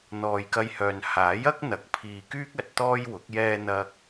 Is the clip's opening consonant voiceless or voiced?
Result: voiced